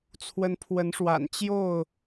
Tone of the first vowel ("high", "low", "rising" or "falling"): rising